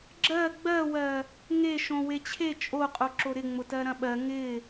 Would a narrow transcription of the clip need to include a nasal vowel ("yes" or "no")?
yes